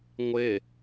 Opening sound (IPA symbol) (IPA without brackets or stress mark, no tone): ŋʷ